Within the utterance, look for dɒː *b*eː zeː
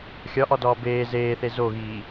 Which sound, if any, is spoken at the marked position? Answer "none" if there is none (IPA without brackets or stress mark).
b